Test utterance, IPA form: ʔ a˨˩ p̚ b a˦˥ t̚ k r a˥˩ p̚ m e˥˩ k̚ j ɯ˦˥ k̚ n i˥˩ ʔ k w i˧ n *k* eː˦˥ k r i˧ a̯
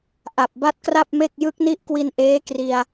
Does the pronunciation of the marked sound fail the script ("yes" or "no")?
yes